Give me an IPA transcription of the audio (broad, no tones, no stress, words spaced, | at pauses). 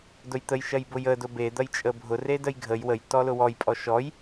dʊjt̪əj ʃɐjbʊjə dʊbe d̪ɐjt͡ʃʼəbʱʊ redəjɡʱəj wəj tɔlʊwɔj pʼɔʃɔj